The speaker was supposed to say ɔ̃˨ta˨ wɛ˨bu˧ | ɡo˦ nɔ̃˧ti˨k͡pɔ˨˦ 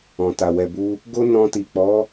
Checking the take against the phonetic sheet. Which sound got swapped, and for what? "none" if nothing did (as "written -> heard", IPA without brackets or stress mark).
none